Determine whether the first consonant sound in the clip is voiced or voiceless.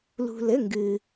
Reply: voiced